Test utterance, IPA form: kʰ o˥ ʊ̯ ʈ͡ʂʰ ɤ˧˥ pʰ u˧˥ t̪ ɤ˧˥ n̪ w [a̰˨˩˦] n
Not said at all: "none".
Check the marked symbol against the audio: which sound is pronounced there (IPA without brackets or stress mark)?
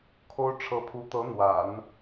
a̰˨˩˦